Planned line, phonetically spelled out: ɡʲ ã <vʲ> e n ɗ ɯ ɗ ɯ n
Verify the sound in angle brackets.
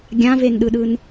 incorrect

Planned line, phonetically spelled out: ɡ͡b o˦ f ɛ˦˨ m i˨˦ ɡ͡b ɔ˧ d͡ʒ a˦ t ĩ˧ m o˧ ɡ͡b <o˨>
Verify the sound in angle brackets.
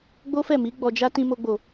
correct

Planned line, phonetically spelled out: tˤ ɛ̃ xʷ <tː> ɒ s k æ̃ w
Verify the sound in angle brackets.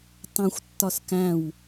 correct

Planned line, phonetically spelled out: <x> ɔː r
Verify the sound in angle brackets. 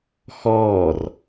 correct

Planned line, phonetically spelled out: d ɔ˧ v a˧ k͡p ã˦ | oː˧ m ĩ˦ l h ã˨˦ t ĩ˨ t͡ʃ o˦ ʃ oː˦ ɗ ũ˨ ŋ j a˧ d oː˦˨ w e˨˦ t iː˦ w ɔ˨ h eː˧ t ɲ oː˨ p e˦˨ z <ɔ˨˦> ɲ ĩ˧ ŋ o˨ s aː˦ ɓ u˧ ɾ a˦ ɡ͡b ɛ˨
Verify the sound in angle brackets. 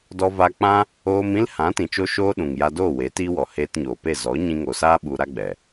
correct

